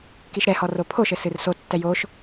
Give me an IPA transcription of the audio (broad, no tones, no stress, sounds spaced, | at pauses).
k i ʃ ɾ ɛ h ɔ r o pʰ o ʃ ɘ s ɨ r s o tː ɛ j o ʃ